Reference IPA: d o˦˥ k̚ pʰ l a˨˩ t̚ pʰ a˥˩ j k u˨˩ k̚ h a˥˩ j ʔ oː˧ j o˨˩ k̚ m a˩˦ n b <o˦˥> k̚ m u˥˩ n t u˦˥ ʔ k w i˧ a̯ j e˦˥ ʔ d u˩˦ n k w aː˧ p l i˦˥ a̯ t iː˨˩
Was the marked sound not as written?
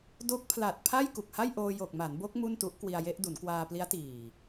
no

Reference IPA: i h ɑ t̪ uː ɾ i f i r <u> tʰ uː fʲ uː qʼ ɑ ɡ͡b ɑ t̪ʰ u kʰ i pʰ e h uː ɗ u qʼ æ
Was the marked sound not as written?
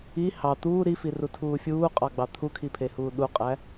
no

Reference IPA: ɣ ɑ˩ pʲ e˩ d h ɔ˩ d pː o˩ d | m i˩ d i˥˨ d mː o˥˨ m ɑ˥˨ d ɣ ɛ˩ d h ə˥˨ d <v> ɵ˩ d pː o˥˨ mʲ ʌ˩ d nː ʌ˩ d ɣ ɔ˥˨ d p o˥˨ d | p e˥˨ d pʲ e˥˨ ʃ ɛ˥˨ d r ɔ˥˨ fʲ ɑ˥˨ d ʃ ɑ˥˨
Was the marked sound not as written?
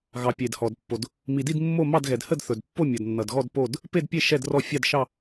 yes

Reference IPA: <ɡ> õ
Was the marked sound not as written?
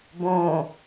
yes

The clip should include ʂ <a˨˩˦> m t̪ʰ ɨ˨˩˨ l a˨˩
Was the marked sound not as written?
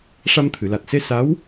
yes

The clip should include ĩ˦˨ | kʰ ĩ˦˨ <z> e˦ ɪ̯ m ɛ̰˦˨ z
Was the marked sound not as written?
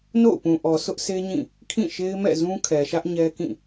yes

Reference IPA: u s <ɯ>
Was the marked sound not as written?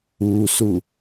yes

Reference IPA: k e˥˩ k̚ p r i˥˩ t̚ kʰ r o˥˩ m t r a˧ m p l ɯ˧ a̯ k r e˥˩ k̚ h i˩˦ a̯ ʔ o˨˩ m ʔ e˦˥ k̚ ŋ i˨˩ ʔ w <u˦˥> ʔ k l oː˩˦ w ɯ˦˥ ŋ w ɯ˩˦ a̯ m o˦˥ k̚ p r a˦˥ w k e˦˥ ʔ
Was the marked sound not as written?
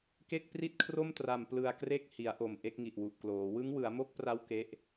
yes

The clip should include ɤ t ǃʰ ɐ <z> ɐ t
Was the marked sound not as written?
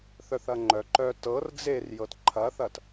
yes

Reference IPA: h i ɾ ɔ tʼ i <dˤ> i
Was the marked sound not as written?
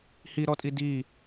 yes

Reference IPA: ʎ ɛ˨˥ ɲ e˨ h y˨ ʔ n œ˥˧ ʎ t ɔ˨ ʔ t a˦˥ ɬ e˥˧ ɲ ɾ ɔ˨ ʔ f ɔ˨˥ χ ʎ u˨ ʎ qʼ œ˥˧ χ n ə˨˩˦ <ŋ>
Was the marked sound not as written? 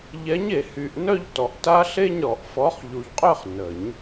yes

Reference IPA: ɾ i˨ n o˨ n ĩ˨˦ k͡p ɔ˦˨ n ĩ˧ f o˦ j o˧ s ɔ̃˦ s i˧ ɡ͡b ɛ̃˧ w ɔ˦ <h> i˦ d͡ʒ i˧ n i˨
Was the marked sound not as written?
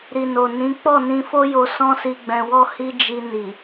no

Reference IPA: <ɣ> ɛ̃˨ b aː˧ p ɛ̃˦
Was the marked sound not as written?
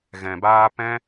no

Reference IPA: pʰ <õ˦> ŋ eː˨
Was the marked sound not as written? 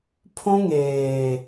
no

